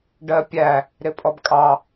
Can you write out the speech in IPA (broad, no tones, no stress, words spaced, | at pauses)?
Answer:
ɖɜpʲæ | ɾɪpʼɔbkʼɑ